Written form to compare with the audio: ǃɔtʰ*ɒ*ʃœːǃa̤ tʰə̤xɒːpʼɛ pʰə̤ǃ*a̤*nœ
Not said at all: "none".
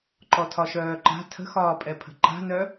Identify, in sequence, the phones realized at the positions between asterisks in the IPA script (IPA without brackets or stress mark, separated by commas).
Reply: ɒ, a̤